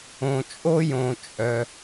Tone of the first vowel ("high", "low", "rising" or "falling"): low